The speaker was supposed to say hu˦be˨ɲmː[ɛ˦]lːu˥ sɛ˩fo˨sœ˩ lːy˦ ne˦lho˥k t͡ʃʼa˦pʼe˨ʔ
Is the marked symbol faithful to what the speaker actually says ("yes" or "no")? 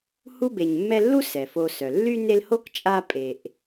yes